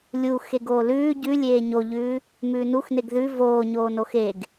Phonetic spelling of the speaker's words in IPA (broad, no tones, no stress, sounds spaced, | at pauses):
lʲ u x e ɡ oː l ʉː ɟ ʉ lʲ eː ɲ o ʎ ʉː | m ʉː n u x n e ɡ ð ʉ v oː ɲ oː n o x e ɡ